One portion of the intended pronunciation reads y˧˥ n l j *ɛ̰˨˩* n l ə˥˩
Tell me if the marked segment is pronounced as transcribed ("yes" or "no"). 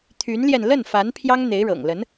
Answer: no